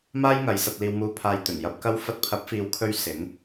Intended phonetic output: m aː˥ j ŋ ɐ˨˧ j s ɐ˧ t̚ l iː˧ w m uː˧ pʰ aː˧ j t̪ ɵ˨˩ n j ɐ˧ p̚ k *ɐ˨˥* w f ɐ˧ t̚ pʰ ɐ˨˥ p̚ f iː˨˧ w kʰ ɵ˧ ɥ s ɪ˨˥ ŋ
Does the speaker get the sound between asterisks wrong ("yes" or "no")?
yes